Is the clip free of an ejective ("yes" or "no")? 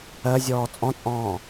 no